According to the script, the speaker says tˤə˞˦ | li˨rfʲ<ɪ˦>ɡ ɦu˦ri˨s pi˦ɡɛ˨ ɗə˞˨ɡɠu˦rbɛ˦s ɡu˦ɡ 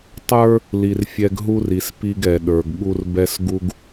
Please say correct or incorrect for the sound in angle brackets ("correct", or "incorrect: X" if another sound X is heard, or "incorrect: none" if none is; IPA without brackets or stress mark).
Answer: incorrect: ɛ˦